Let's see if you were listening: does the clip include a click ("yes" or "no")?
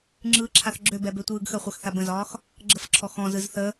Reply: yes